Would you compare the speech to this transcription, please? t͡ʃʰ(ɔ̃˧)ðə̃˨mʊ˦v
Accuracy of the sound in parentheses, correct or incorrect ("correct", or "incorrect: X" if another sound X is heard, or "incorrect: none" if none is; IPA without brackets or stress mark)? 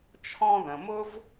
correct